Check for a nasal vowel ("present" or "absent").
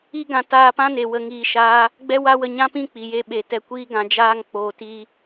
present